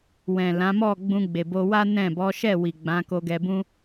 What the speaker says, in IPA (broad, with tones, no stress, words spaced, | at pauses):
wɛ̃˨lã˨˦ mɔ˦˨ ɡ͡bũ˧ɡ͡be˨bo˧wa˦ nɛ̃˦˨ bɔ˨˦ʃɛ˦˨ wi˨ɡ͡bã˨˦ ko˧ɡɛ˧bũ˦